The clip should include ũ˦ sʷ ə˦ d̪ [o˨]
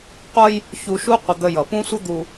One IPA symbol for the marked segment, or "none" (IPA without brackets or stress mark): u˨